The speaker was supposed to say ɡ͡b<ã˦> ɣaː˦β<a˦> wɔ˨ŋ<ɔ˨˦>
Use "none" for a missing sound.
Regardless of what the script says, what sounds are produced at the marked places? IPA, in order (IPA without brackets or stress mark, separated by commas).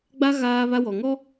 a˦, a˦, ɔ˦